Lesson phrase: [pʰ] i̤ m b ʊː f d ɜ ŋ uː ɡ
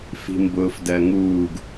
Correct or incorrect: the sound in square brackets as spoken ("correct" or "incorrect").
incorrect